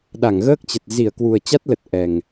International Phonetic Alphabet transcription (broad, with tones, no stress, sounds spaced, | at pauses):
ɗ a˧˩ ŋ ɣ əː˦˥ k̚ t͡ɕ ə˨˩ t̚ z i˧˩ ə̯ k w u˨˩ ə̯ t͡ɕ a˦˥ t̚ l ə˨˩ t̚ ʔ ɛ˨˩ ŋ